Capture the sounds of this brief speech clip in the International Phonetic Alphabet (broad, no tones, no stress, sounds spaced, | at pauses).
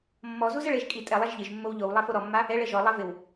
mː ɔ z u z ɛ ɭ e ʒ kʼ i tʼ ɛ lˠ a ʒ ʎ ɪ ʒ mː o w ʎ o w lˠ ɛ f o ɾ ɔ mː a | ɛ ɭ ɛ ʒ ɔ lˠ ɛ v ɪ w